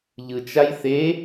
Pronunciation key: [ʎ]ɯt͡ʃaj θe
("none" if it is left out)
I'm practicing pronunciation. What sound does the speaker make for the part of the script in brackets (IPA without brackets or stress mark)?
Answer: ʎ